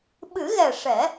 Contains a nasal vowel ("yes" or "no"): no